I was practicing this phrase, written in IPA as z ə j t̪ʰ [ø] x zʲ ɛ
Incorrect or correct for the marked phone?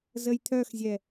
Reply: incorrect: œ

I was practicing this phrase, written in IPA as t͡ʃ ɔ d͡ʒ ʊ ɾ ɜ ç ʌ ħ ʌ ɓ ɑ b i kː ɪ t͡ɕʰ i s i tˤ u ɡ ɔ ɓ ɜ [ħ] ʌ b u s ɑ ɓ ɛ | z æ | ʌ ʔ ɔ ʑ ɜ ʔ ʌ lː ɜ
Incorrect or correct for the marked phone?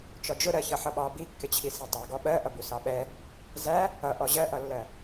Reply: incorrect: ʔ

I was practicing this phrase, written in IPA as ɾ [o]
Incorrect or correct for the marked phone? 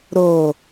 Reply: correct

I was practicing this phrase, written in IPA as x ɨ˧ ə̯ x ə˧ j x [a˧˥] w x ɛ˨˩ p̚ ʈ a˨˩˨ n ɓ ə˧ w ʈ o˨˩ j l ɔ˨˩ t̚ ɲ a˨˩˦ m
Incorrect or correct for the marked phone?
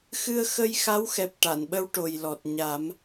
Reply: correct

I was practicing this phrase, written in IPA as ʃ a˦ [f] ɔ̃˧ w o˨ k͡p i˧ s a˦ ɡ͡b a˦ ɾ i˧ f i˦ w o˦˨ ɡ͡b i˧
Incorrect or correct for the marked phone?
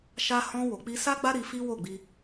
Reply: incorrect: h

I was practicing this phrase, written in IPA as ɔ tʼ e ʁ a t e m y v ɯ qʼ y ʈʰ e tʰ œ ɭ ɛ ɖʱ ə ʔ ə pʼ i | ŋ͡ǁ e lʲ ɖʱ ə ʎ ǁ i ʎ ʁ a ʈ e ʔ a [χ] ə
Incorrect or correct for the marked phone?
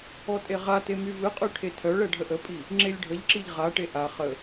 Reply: correct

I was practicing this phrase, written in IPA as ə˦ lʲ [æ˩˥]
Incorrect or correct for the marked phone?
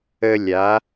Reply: incorrect: a˩˥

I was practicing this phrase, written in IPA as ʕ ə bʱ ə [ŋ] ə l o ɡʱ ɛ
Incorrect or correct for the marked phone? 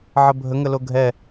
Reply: correct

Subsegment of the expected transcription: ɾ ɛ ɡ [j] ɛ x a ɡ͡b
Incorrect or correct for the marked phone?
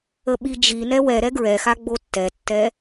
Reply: incorrect: ɹ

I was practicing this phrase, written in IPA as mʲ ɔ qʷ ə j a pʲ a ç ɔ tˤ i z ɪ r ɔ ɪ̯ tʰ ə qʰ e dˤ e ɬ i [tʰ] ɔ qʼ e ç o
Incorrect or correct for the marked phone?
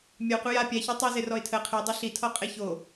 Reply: correct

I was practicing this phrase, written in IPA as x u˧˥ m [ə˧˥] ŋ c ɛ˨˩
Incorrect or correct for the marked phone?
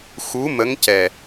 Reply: correct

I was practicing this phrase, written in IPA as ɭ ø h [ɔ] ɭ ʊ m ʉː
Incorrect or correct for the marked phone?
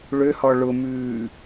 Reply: correct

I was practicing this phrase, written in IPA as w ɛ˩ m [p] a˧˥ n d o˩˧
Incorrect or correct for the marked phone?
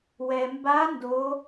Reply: incorrect: b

